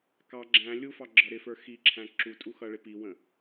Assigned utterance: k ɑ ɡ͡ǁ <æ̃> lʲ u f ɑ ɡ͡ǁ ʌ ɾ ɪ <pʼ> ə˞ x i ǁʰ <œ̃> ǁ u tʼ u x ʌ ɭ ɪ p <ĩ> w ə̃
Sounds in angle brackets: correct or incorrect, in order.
correct, incorrect, incorrect, incorrect

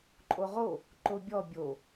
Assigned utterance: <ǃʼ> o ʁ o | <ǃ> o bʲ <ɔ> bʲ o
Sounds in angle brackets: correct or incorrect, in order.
correct, correct, correct

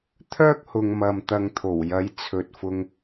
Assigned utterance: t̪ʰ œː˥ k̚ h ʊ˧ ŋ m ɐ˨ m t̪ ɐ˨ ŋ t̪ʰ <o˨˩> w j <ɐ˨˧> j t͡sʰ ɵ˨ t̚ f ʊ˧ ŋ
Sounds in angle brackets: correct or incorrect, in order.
correct, incorrect

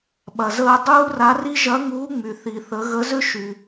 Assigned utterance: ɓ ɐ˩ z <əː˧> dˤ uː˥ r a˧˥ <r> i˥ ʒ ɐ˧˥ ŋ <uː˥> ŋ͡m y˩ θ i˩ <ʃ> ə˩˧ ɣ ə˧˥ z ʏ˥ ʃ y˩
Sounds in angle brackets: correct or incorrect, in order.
correct, correct, incorrect, incorrect

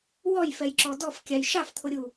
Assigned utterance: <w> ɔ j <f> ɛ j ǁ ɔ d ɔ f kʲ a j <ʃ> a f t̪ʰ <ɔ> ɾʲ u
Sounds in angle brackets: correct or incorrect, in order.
correct, correct, correct, incorrect

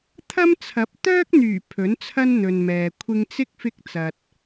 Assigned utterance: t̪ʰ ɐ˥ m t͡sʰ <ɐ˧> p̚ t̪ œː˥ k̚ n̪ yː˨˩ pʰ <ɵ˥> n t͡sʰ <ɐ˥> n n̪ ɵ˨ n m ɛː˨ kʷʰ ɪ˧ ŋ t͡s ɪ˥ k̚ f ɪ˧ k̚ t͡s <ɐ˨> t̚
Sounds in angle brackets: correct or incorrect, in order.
incorrect, incorrect, correct, correct

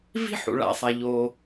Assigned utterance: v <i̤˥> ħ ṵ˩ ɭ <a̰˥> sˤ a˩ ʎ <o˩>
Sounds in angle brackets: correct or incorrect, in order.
correct, incorrect, correct

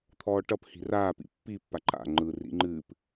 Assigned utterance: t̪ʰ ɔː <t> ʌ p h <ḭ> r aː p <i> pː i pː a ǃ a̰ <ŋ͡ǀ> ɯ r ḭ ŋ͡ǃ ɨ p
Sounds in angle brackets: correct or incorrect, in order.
incorrect, incorrect, incorrect, incorrect

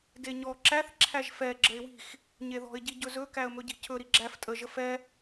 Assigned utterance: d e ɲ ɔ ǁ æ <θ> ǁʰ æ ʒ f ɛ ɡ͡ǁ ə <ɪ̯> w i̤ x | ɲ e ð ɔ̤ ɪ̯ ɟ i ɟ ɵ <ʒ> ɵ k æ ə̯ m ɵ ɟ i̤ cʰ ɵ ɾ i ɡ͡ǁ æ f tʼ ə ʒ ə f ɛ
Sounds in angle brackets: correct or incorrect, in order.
correct, correct, incorrect

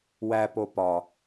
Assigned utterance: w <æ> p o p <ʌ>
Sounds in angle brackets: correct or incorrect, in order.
correct, incorrect

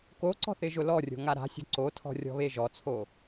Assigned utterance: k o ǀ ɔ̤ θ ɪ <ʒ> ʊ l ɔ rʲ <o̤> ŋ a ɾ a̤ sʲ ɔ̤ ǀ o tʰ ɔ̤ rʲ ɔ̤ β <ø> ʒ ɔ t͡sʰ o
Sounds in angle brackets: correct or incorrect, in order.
correct, correct, incorrect

